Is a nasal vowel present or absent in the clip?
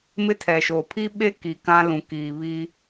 present